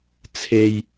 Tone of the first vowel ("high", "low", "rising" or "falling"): low